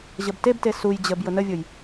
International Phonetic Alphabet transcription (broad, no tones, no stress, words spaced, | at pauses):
ʑəbtebte suj d͡ʑəb jʊnəvʲʊj